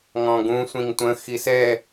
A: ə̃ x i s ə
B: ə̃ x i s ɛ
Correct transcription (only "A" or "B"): B